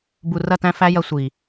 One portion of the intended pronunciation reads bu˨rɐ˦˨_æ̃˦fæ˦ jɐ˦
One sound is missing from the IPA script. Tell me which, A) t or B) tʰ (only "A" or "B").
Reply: A